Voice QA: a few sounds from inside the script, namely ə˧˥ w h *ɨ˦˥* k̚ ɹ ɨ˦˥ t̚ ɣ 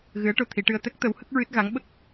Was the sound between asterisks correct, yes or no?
no